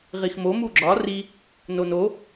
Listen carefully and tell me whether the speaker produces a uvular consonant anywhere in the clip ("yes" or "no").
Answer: yes